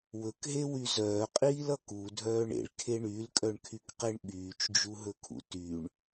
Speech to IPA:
w ɵ k ɦ e w y z œː qʼ iː l ʌ k u dʱ œː ɳ ḛ ɭ kʰ e ɳ y l kʼ œ ɳ kʰ y k q e ɳ ɓ yː t͡ʃ d͡ʒ u ɦ ɵ kʰ ṵ t y ɳ

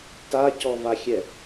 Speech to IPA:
t a c ɔ v a xʲ ɛ

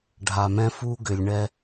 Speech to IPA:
ɖʱ a˨ m ɛ̃˦ f u˦ ɡ ʏ˨ lʲ ɳ ɛ˦

